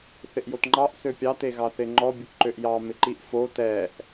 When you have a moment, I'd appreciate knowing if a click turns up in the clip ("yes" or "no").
yes